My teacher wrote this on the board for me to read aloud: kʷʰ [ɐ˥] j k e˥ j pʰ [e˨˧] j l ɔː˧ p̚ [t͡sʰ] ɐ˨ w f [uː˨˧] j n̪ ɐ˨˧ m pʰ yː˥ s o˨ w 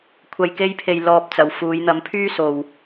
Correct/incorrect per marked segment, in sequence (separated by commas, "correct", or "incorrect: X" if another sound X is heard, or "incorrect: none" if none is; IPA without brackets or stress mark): incorrect: ɐ˧, incorrect: e˧, incorrect: t͡s, correct